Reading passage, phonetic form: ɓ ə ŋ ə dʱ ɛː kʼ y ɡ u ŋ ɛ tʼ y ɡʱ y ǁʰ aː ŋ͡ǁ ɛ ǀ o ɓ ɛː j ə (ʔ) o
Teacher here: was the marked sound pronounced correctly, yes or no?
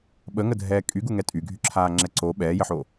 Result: no